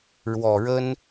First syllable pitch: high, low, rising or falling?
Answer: low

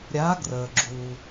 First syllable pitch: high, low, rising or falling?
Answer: rising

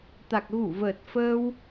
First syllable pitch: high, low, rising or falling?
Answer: low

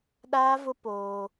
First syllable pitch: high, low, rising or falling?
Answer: high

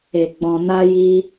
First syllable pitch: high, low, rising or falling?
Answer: low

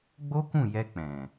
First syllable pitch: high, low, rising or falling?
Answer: high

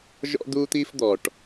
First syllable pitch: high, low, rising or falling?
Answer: high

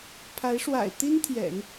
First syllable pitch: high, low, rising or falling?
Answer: rising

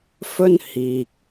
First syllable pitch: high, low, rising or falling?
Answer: high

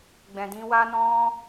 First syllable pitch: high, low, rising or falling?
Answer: low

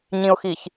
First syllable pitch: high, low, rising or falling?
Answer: low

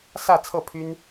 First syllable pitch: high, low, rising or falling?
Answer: falling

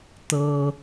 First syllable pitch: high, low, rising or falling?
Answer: low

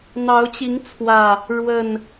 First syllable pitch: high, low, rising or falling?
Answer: rising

